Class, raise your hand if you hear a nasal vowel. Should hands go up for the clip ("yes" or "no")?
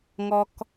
no